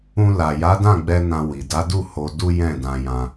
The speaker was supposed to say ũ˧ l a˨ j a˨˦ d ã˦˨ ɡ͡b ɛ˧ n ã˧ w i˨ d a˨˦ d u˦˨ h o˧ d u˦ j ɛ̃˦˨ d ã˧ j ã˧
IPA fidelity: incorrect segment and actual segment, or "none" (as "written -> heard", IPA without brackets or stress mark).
none